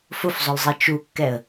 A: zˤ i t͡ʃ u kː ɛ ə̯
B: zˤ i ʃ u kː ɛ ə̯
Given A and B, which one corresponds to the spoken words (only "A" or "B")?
A